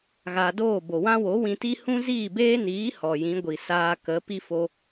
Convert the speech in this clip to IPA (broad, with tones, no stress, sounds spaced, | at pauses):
ɣ a˧ d oː˦˨ b o˨ w ã˦ w o˨˦ w ĩ˧ t i˦ h ũ˦ z iː˦˨ b eː˦ n iː˨˦ h ɔ˨ j ĩ˨˦ ɡʷ i˨ s aː˧ k ə˨˦ p i˦ f o˧